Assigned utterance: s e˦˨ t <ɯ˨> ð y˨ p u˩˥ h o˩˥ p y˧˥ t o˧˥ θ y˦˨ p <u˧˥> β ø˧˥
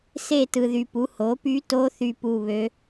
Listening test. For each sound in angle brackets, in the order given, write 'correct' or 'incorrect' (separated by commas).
correct, incorrect